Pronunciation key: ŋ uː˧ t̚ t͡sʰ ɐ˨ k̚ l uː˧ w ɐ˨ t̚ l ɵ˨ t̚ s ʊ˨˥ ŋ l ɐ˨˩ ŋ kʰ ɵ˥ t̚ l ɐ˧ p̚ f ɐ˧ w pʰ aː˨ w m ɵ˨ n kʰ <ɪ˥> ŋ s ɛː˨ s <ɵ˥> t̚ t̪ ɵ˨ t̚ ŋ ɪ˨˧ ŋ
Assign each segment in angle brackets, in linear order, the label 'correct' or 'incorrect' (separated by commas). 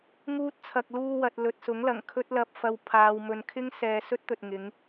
correct, correct